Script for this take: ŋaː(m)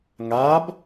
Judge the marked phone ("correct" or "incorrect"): incorrect